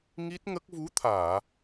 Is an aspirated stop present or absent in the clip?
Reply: present